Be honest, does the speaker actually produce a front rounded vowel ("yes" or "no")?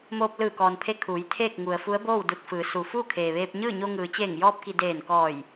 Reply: no